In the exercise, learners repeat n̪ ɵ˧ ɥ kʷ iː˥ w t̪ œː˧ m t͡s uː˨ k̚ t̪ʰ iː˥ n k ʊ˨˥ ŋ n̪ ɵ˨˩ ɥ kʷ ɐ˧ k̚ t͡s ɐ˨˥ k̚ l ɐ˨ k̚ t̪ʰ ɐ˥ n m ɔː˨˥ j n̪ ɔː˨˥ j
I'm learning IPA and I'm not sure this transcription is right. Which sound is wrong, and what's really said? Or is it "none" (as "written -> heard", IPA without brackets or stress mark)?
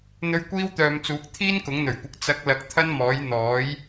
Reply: œː˧ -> œː˨